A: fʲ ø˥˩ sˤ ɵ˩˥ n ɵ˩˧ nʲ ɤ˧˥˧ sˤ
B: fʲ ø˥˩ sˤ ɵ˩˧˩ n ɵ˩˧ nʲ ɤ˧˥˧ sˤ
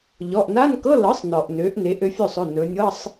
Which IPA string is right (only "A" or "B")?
B